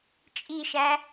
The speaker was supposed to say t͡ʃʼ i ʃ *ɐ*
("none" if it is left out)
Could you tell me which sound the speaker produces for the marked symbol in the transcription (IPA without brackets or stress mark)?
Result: æ